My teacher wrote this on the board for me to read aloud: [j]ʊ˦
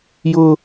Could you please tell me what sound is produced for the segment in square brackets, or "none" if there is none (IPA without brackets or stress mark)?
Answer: j